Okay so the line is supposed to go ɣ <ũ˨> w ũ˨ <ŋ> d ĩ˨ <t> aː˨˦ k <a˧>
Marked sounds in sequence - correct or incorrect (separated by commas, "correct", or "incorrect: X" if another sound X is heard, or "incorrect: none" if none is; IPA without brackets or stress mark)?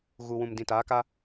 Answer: incorrect: u˨, incorrect: m, correct, incorrect: a˦